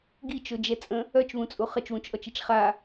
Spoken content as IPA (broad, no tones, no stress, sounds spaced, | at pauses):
ɡ i t͡ʃ o d͡ʒ ɛ t͡sʼ ə̃ | œ t͡ʃ β ũ t͡sʼ u χ ə t͡ʃ w ũ t͡ʃ ʔ ɔ t͡ʃ i t͡ʃ χ a